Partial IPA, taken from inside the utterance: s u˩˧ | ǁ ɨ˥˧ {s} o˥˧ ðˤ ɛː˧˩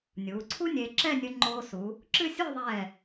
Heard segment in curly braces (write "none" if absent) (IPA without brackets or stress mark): sʲ